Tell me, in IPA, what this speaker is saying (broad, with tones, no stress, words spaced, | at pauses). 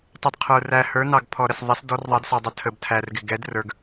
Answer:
tˤʊ˧d qʰə˞˧ræ˧ hə˞˧˥nɑ˧ɡpʰɔ˧ ɾə˧sðˤɛ˧˥s dɔ˧˥rðˤɑ˧˥dsɑ˧dˤə˧ tʰə˧btʰæ˧rɡɪ˧ ɡɛ˧˥drə˞˧ɡ